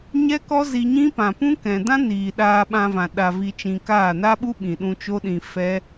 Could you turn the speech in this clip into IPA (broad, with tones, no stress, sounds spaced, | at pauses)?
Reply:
ɲ ɛ˦ k ɔ˦ z i˧ ɲ ĩ˦ p ã˨ p ũ˦ k ɛ̃˨ d ã˦ n iː˨ ɗ aː˧ ɓ ã˧ v ã˨ ɗ a˨ v i˧ t͡ʃ ĩ˧ k aː˦˨ n a˦ ɓ u˦ ɓ ĩ˨ ɗ ũ˧ t͡ʃ o˦ ɗ ĩ˧ f ɛ˦